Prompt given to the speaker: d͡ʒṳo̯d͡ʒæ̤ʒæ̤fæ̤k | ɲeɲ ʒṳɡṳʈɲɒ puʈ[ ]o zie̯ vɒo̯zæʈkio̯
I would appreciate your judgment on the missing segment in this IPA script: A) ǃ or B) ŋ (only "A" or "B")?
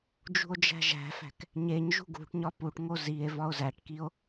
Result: B